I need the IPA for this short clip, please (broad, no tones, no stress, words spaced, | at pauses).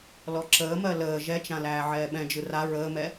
lɔǁəːmɜ ləː ʒɛt͡ʃã læːʕɛːɓɛ̃d͡ʒɯ ra ɹəːmɛ